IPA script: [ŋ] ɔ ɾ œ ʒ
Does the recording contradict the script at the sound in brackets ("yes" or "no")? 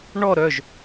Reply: yes